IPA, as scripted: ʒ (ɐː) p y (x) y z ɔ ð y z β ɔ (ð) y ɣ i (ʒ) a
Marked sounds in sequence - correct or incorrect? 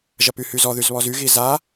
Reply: incorrect: ɐ, incorrect: h, incorrect: z, incorrect: z

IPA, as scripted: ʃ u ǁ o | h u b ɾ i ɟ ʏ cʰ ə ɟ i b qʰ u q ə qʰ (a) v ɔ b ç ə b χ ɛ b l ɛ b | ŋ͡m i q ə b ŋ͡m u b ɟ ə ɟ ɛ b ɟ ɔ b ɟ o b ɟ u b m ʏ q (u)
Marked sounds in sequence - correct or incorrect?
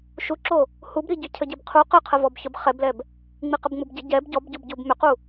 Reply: incorrect: ə, correct

